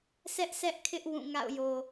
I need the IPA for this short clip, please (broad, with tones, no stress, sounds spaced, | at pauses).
sʰ ɛ˦ ʔ s ɛ˦ ʔ kʰ ɪ˦ ʔ w ũ˦˨ ŋ a̰˦˨ ʊ̯ j o˨